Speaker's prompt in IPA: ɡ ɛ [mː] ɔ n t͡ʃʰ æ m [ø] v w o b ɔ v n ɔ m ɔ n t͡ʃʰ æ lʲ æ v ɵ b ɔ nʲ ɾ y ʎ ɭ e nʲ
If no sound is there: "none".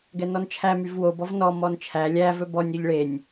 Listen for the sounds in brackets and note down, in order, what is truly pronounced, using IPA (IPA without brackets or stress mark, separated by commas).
n, y